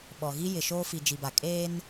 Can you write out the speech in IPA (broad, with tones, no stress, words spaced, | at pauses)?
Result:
ɓɔ˨ɣi˦ jɪ˨ʃoː˦fi˨ d͡ʒi˨ba˨ kʼeː˦n